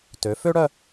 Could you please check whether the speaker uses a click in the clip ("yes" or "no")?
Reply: no